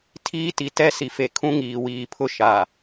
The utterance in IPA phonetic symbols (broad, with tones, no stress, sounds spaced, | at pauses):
tʰ iː˦ t i˨ t ɛ˦˨ s i˨ f e˨ kʰ ũ˦ ŋ iː˨ w iː˨ pʰ ʊ˦ ʃ a˨